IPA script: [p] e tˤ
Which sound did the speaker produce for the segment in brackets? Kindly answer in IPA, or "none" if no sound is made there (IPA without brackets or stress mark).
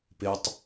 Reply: p